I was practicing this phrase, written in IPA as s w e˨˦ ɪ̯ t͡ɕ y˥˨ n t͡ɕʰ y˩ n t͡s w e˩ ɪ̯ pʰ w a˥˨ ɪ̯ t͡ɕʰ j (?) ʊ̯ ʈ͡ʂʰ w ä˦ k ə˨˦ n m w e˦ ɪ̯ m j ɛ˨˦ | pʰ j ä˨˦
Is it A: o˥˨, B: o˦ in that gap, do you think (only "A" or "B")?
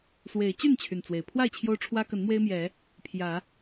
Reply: B